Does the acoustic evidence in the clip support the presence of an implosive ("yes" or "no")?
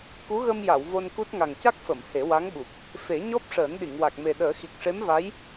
yes